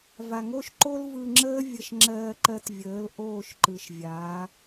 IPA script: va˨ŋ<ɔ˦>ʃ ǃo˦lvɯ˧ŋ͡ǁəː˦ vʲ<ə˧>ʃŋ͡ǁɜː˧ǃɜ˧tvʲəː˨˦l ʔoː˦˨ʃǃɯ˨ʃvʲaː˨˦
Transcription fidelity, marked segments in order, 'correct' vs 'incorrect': incorrect, correct

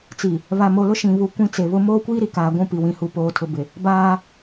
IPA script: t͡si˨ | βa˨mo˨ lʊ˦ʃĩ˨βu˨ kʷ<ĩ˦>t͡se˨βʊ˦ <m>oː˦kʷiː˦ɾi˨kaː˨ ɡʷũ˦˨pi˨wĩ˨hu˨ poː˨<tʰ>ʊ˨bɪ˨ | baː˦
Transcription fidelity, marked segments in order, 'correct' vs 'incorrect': correct, correct, correct

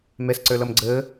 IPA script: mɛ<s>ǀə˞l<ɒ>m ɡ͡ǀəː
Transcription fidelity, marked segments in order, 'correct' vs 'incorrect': correct, incorrect

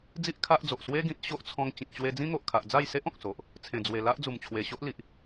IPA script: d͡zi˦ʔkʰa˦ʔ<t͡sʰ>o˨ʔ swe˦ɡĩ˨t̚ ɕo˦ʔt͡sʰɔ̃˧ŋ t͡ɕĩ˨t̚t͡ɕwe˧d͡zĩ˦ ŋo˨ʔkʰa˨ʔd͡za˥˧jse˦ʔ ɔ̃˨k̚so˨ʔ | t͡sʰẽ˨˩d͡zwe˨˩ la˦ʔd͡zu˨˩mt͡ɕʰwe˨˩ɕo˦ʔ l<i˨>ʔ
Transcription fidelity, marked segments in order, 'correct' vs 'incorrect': incorrect, correct

